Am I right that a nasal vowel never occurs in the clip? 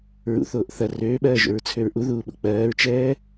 yes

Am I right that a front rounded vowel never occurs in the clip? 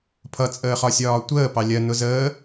yes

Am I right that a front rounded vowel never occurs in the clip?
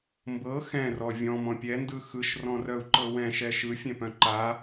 no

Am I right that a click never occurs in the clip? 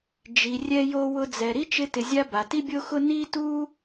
yes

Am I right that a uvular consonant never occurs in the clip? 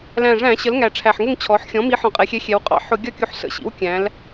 no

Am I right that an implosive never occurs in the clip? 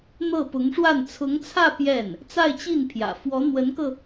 yes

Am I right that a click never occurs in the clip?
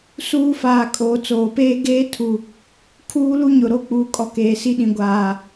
yes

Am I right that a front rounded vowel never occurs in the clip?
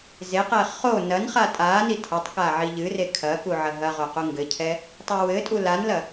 yes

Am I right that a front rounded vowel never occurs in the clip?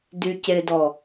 no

